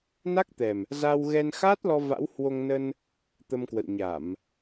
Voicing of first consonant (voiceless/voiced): voiced